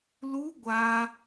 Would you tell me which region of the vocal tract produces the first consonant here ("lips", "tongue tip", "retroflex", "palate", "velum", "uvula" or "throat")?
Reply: tongue tip